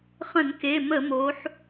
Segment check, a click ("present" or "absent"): absent